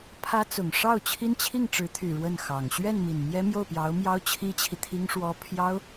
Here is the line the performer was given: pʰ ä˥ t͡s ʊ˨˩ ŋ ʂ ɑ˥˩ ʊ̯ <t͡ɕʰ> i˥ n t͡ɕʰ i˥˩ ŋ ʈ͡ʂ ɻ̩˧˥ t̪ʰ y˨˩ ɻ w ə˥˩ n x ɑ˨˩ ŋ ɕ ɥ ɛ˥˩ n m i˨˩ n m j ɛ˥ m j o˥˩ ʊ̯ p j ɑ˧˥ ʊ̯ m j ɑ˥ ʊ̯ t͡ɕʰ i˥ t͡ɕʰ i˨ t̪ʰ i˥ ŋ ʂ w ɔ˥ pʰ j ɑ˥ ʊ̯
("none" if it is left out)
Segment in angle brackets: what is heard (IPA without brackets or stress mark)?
t͡ɕʰ